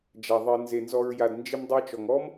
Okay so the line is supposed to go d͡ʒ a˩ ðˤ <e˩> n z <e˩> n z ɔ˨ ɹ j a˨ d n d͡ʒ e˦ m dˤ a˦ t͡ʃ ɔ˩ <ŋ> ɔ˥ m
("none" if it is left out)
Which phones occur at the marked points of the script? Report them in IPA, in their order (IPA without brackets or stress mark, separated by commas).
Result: e˨, e˩, ŋ